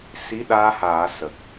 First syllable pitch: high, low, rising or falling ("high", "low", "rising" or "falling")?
rising